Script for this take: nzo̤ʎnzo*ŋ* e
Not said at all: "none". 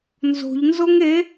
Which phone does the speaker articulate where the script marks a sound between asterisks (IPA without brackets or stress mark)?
ŋ